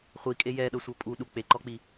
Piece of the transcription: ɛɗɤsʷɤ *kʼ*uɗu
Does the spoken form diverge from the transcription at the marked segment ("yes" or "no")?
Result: yes